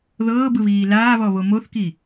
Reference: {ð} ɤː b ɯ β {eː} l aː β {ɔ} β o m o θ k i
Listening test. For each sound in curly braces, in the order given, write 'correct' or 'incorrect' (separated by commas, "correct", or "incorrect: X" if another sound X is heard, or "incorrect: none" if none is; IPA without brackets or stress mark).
correct, incorrect: iː, correct